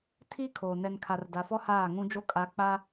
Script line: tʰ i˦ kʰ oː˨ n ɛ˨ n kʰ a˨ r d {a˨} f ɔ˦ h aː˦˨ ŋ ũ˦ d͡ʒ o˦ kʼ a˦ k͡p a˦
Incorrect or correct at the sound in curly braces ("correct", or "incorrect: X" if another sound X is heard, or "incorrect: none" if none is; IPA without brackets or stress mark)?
correct